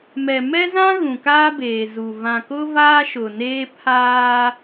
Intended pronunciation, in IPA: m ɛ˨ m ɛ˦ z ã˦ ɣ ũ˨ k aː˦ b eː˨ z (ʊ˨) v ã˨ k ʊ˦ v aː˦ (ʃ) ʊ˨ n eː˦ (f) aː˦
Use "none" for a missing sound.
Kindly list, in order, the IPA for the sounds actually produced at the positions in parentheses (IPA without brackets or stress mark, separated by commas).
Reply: u˨, ʃ, pʰ